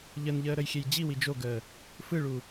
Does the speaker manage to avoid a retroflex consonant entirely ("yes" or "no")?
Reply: no